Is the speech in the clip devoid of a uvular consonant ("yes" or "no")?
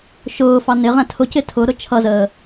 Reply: no